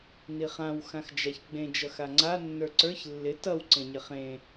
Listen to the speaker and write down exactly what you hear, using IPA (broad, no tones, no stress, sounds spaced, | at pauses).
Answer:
n i χ ã w x ã x d͡ʒ a ç ɡ͡b ẽ d͡ʒ ʌ x a ŋ͡ǀ a nː ə˞ ǀ ə˞ ç lː ɪ t ʌ w ǀ ẽ ɲ ɪ χ ẽ